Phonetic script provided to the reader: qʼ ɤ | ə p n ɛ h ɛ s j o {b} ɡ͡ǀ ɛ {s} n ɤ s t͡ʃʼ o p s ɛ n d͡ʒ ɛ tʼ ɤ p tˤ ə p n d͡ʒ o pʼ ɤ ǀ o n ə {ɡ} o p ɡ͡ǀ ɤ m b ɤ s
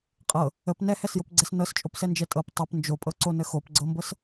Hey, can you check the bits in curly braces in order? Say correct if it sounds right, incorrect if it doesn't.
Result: incorrect: p, correct, incorrect: x

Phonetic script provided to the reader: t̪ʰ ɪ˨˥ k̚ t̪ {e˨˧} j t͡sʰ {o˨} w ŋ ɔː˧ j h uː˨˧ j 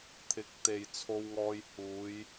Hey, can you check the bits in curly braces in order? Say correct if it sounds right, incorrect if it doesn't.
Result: incorrect: e˨, incorrect: o˧

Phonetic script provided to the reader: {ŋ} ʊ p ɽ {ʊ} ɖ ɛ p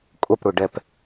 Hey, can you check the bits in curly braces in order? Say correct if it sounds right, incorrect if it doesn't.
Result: incorrect: kʼ, correct

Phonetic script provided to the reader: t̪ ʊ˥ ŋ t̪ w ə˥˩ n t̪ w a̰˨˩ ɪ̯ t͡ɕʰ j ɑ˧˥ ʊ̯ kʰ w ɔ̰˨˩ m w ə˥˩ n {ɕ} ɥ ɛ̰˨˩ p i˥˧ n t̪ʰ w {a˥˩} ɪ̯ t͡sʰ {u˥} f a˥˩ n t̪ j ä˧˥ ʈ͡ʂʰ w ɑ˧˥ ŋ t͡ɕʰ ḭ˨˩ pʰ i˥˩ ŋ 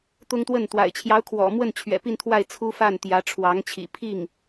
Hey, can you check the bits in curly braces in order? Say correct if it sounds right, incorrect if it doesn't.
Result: incorrect: t͡ɕʰ, correct, correct

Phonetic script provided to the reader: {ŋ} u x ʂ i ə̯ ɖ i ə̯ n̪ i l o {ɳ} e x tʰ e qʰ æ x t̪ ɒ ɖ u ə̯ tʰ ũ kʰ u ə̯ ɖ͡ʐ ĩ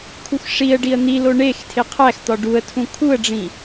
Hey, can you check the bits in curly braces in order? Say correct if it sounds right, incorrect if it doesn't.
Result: incorrect: kʰ, correct

